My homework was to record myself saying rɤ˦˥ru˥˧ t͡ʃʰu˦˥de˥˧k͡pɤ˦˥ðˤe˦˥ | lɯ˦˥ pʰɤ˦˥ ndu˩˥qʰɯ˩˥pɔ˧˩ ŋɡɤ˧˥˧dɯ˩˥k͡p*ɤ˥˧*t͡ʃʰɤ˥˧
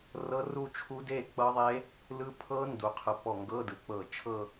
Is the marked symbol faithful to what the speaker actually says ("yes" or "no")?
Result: no